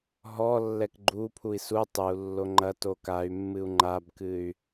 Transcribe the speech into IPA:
ɦ ɔ lː ɛ k ɡ͡ǃ u pʰ u i̯ s u tˤ ɨ u̯ lː o ŋ͡ǃ ɐ t o k a y̯ mː ɨ u̯ ŋ͡ǃ a b k ɨ y̯

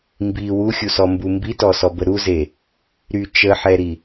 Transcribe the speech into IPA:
m b i w u xʲ u s ɔ m b u m b i t ɔ s ɔ b ə ɾ u z e | ɾ y t͡ʃ ə ħ ɛ ɾ i

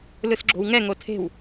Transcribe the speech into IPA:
l ɯ s ɡ͡ǁ o̤ w ŋ ɛ ŋ o tʰ e̤ w

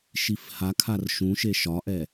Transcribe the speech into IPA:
ʃ i f h a kʰ a r ʃ ũ ʃ e ʃ ɒ ʔ ɛ

